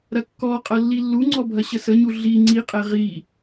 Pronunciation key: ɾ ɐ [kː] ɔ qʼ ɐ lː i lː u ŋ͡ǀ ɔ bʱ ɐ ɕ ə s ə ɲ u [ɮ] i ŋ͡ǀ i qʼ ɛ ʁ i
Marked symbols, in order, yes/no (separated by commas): yes, yes